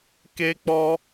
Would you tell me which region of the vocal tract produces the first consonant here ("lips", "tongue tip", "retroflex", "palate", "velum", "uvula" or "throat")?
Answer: velum